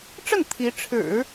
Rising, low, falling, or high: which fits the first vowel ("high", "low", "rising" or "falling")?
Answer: falling